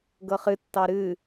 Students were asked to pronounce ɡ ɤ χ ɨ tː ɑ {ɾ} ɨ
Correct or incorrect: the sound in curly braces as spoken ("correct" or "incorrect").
correct